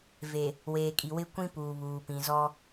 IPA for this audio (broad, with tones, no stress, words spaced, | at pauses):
ve˨ | weː˨kʼi˨ wɪ˦kʷĩ˦ puː˨βuː˨ pĩ˨zɔ˦